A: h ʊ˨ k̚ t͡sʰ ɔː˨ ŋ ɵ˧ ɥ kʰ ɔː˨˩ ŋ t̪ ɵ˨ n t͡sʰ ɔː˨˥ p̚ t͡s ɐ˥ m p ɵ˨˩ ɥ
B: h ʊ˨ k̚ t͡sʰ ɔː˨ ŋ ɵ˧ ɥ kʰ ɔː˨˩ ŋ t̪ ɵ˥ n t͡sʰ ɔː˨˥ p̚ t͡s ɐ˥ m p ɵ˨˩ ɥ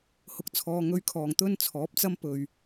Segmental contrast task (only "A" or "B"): B